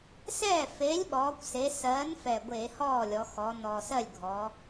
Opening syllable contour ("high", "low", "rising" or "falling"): falling